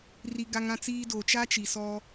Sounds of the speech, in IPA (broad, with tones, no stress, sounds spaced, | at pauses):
r i˨ ɡ a˨ ŋ ã˨ t͡s iː˨ d o˨ t͡ʃ a˦ t͡ʃ i˨ s ɔ˦